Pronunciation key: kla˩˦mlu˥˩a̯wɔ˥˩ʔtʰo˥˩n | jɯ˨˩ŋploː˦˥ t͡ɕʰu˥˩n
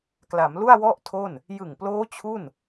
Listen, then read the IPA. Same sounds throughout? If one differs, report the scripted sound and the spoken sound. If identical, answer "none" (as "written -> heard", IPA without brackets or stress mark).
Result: none